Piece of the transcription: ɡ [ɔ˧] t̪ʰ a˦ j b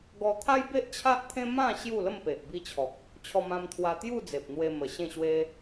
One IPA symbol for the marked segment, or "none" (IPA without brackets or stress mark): ɔ˧